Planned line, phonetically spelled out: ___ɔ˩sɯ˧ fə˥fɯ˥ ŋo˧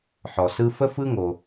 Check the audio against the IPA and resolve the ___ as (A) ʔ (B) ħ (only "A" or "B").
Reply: B